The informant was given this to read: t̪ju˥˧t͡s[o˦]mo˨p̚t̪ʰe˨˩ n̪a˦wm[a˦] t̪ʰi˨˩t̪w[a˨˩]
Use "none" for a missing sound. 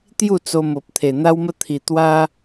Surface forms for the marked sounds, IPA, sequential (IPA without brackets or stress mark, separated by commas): o˧, ə˦, a˦